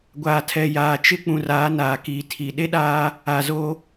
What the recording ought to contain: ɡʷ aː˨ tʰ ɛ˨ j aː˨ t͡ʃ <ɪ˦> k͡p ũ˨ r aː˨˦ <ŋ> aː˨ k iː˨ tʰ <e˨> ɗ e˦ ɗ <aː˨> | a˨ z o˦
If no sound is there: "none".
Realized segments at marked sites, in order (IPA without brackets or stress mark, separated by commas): ɪ˦, n, i˨, aː˦